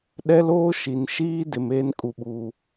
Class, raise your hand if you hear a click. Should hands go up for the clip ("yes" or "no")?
no